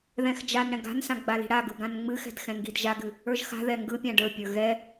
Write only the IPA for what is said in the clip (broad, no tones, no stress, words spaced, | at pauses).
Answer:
ðɛ̃xd͡ʒanɽɛ̃ ɡa̤nsã ɡ͡bali̤ɽaɡɯ ɡãnŋ͡mɨxɛ̤d xɛ̃ŋɡidʒaɡɨ | ə˞ʒxa̤ðɛ ŋɡɯpʲã ɖə˞pʲə˞ ɣɛ